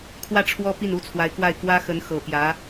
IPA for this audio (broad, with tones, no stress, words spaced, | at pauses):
kʰwä˥˩ʈ͡ʂʰwɔ˥ pi˥˩nu˥t͡sʰwa˧˥ɪ̯kwa˥˩ɪ̯ kwä˥xə˧˥nxɤ˨˩pjä˧˥